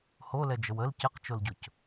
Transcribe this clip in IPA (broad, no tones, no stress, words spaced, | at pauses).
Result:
holɛd͡ʒəw əl cəqt͡ʃolɟʊc